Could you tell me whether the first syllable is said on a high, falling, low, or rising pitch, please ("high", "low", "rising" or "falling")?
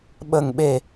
low